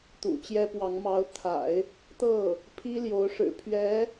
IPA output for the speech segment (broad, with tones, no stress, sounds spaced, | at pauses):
t̪ ṵ˨˩ t͡ɕ j ɛ˥ p w ɑ˧˥ ŋ m ɑ˧˥ ʊ̯ t̪ʰ a̰˨˩˦ ɪ̯ | t̪ ɤ˥˩ | pʰ i˥ l j o˧˥ ʊ̯ ʂ ɻ̩˨˩ pʰ ɥ ɛ˧˥